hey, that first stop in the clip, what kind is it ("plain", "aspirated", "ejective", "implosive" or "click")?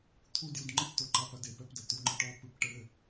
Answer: aspirated